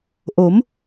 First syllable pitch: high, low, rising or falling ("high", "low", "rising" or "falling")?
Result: rising